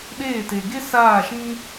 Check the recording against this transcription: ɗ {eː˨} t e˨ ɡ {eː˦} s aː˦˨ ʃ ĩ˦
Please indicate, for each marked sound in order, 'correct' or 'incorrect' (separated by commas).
incorrect, incorrect